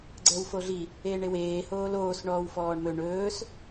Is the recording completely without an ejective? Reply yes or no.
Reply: yes